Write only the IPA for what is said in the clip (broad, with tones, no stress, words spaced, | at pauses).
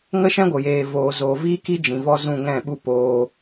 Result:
ŋə˦ʃɛ̃˦ɡʷə˨ jeː˨voː˨ zoː˨viː˦ki˦ d͡ʒĩ˨vɔ˦ zũ˦˨ŋɛ̃˦˨ɓu˦ poː˧